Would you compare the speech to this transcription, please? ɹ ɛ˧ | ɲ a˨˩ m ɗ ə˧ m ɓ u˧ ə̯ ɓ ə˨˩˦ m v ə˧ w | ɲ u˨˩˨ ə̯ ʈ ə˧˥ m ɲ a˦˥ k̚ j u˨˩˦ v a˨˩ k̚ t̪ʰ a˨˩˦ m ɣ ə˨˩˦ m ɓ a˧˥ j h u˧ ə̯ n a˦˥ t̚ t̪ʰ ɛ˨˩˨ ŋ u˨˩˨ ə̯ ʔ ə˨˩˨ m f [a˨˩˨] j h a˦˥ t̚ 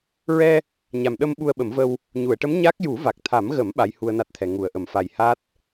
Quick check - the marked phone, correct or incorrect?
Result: incorrect: a˨˩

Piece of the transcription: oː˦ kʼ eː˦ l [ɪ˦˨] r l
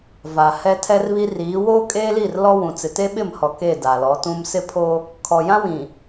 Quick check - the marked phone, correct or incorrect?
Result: incorrect: i˦˨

